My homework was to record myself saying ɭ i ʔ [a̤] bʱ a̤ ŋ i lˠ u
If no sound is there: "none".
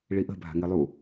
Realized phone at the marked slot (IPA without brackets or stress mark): ə̤